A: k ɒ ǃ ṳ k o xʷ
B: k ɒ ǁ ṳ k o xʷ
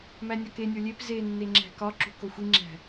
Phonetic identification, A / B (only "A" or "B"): B